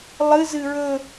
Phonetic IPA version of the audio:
lˠ ɨ z ɨ ɹ ɵ

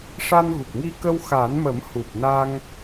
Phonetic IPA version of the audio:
ʂ a˧ n ɣ u˨˩ k̚ ŋ i˧ k ə˧ w x a˨˩˦ n m ə˨˩˦ m h u˨˩ p̚ n a˧ ŋ

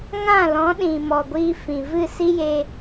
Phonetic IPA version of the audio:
ŋ ã˦˨ l ɔ̃˨˦ ɗ ĩ˨ m ɔ˨ ɡʷ iː˧ f ĩ˨ v ɨ˦˨ s i˦ j e˧

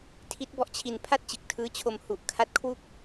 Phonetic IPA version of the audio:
tʰ i˦˥ t̚ b ɔ˦˥ ʔ t͡ɕʰ i˧ n pʰ a˥˩ t̚ t͡ɕ ɯ˨˩ k̚ tʰ ɯː˦˥ t͡ɕʰ o˧ m h u˨˩ ʔ kʰ a˦˥ t̚ kʰ w u˥˩ k̚

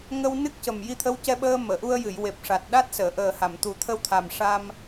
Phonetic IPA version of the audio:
ŋ ə˧ w n ɨ˦˥ k̚ c ə˨˩ m j i˧ t̪ʰ ə˧˥ w c ɛ˧ ɓ əː˧ m əː˨˩˨ ʔ u˧ ə̯ j ɨ˨˩˨ j w e˨˩ p̚ ʂ a˨˩ t̚ ɗ a˦˥ t̚ s əː˨˩˨ ʔ əː˨˩ h a˨˩˨ m t̪ u˨˩˦ t̪ʰ ə˧ w t̪ʰ a˨˩ m ʂ a˧ m

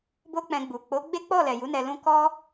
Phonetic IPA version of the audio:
b o˦ k͡p ɛ̃˧ ɡ͡b u˨ k͡p o˨˦ ɡ͡b e˦ k͡p ɔ˦˨ l ɛ˨ j u˨˦ n ɛ˧ l ũ˦ k ɔ˦

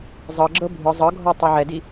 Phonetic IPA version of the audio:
zˤ ɤ ɡ͡ǁ ɤ bʱ ɯ zˤ ɤ ɡʱ ɔ tˤ e ʕ ɛ d i

